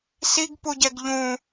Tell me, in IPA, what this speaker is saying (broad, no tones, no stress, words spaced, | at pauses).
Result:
siɡpuɟɛɡ ʎũ